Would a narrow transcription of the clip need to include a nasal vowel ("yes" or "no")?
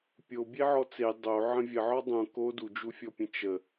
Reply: yes